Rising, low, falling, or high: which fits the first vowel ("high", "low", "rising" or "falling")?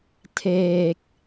low